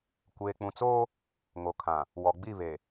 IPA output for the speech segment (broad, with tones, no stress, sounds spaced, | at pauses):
kʷ eː˨ k͡p ũ˨ t͡s oː˦ | ŋ o˨ kʰ ã˨ | w ɔ˨ ɡ͡b i˦˨ β e˨